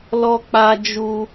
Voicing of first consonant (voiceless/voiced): voiced